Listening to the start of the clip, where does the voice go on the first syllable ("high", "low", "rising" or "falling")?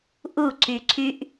falling